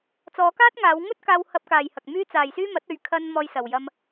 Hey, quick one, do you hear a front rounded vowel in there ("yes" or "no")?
yes